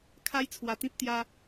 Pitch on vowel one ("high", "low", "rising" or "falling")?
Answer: high